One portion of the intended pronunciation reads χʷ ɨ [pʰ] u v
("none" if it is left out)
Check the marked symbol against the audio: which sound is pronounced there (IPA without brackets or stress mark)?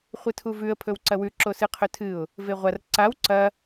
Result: tʰ